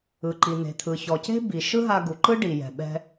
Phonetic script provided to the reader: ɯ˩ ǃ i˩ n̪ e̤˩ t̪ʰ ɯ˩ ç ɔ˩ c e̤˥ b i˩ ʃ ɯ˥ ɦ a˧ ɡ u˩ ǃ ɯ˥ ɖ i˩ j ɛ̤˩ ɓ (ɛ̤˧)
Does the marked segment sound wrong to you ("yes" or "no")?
no